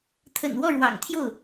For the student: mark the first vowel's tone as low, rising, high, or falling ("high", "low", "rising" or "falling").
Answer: low